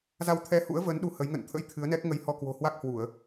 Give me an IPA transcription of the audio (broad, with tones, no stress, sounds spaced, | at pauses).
z a˧ w t̪ʰ ɛ˧ h ṵ˧˥ ə̯ v əː˨˦ n ɗ u˧ h ə˨˦ j ŋ ə̰˧˨ n t̪ʰ ə̰˧˥ j t̪ʰ ɨ˨˦ ə̯ n ɛ˦˥ k̚ ŋ ə˧ j h ɔ˧ k w o̤˨˩ h w a˦˥ k̚ h w u˧˩˨ ə̯